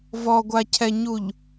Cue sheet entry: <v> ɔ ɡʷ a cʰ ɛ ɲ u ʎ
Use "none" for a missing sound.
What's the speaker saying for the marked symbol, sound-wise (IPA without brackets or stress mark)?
v